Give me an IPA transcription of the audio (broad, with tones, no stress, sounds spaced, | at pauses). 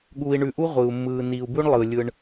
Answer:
ɠ uː˨ i̯ ɳ ʉ˨ ʔ u˥ ʁʷ ɯː˩ u̯ mː ɯː˨ n iː˨ u̯ b ʉ˦ ɳ lˠ ɯː˩ lʲ ɯ˨ ɳ